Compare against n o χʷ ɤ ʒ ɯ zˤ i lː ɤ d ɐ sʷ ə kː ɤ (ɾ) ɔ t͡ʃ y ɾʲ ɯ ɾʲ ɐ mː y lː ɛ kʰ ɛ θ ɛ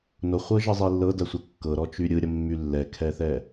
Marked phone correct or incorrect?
correct